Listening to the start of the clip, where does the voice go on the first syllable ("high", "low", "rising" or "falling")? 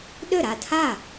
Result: falling